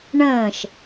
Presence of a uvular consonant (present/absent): absent